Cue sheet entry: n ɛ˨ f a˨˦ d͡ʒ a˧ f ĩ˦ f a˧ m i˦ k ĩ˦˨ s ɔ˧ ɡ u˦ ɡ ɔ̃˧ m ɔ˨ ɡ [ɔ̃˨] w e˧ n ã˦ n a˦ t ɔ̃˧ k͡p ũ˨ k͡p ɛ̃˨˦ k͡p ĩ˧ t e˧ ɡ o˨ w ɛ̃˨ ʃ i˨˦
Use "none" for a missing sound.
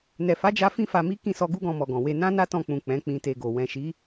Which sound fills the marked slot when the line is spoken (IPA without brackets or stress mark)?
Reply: ɔ̃˨